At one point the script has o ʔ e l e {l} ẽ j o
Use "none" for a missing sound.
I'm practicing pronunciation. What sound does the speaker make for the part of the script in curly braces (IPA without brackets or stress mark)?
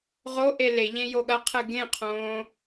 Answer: ʎ